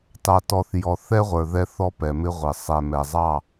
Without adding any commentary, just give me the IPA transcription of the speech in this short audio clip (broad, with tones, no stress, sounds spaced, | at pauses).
t ɑ˨ t ɔ˨ θ j ɔ˨ θ ɛ˦ ʁʷ ə˞˨ ð ɛ˦ θ ɔ˦ p ɛ˨ m ɪ˦ ʁʷ ɪ˨ sˤ ɛ˨ m ɛ˨ zˤ ɑ˦˨